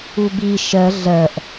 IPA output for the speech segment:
u b i ʃ ɜ ɮ ɜ ʔ

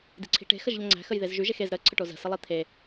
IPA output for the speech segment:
d i̤ ǀʰ i̤ ʈ e̤ x ə ʒ ʎ ə ŋ͡ǀ æ̤ x ə j ð e z ʒ y ʒ e x e z ɾ ə ǀʰ ə ʈ o z ə̤ s ə lˠ i t̪ʰ e

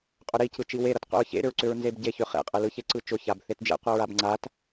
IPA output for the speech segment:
qʼ ʏ ɾ i c ɯ t͡ʃ i w e ɾ ʌ t qʷ ḭ ɹ ç ḛ ɾ ʏ ɹ ǀ ʏ ɹ n z e b ɟ e ç ʏ χ ḛ qʼ ɯ l ɯ ç e ǀ ɯ t͡ʃ ʊ ç a b θ e t d͡ʒ ḛ qʷ a ɹ a b ŋ͡ǀ a t

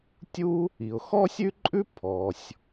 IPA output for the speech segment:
tʲ u˥ | i˩ ʊ̯ x ɔ˥ sʲ ʉ˥ ǃʼ ʉ˥ pʰ ɔ˩ sʲ

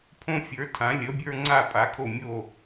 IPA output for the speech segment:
pʰ õ˦ fʲ ə˞˨˦ tʰ ã˨˦ lʲ ə˨˦ bʲ ə˞˦ ŋ͡ǀ a˦˨ pʼ a˨˦ kʰ o˦˨ mʲ o˦˨

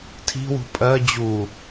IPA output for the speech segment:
tʰ i̤ w ṳ pʼ ɜ d͡ʑ u

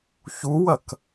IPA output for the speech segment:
ç u w ɐ k

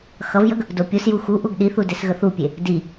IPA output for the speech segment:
x ʌ v j ə ɡ | d o pʲ u s j u x u ʔ u ɡ ɗ i θ u d e s ɣ ə θ u pʲ e | d i

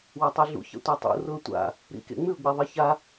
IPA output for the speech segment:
w a tˤ e ɮ ṵ ç a̰ tʷ a tˤ ṵ r ʊ ə̯ tʷ a̰ | ɾ ḭ k ḛ ŋ͡m ʉ ʊ̯ ɡ͡b e ðˤ i ç a

